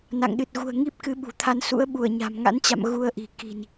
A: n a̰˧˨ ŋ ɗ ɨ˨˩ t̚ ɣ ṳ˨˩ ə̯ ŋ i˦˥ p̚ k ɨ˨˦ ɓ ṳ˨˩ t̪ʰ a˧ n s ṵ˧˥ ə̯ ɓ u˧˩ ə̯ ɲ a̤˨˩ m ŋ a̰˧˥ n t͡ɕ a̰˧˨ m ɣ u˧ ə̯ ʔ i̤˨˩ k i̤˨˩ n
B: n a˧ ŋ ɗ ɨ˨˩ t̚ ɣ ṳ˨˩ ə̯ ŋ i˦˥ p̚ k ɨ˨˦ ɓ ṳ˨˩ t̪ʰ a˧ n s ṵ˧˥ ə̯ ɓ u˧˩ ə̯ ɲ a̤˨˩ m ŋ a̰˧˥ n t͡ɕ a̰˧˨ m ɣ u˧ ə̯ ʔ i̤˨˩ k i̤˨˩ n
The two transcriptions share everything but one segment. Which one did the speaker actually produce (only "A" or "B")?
A